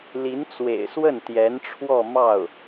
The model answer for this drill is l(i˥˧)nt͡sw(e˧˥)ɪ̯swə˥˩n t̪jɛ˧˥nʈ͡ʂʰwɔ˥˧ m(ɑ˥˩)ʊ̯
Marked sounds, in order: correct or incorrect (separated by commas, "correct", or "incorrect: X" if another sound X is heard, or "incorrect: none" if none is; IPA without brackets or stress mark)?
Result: incorrect: i˧˥, incorrect: ḛ˨˩, correct